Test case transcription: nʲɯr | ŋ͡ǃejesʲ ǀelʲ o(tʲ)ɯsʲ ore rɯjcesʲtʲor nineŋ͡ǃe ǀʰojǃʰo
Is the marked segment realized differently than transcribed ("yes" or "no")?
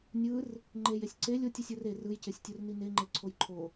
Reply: no